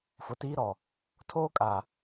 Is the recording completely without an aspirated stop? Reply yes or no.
no